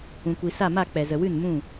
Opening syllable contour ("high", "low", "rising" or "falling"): low